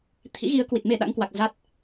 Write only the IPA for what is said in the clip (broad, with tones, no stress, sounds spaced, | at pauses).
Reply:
t̪ʰ ḭ˧˥ ɣ i˨˦ ə̯ k w i˨˩ t̚ m e˧˩ ɗ a̰˧˥ ŋ k w a˨˩ k̚ z a˦˥ t̚